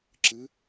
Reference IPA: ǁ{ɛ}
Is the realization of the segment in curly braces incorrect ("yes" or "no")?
yes